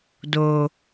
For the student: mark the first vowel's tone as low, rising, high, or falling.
low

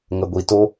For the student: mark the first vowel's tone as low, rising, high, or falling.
low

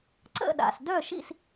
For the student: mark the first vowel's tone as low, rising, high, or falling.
falling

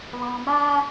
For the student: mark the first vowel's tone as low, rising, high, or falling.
low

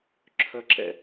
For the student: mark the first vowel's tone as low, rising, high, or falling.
high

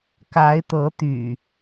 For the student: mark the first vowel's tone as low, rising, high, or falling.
rising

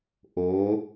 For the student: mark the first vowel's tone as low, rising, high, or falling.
rising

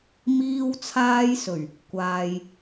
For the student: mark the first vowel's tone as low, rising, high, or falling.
high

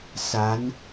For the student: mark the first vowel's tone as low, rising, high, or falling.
rising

